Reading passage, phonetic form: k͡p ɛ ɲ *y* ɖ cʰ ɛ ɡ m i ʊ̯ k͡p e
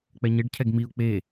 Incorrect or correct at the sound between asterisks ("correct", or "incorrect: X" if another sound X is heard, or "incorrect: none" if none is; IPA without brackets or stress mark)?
incorrect: e